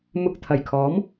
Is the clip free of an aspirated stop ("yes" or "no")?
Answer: no